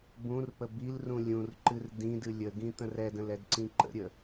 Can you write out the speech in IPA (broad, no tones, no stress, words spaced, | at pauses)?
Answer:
bũrpə bilrũ lʲũrǃɨr dĩdɨ lʲəɡĩt̪ə̃r ɛdə̃lɛdǀĩ ǃə̰ɾʲə